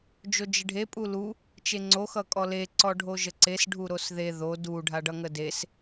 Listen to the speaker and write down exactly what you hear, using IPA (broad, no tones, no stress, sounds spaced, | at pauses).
d͡ʒ o d͡ʒ ɪ ɖʱ e pʼ u l u | t͡ʃ e ŋ͡ǀ o x ʌ kʼ ɔ l e ǀ ɔ ɖʱ o ʒ ə ǀ e s ɖʱ u ɾ o s ð e ð o d u ɖʱ a ɖ ʌ ŋ ə d e s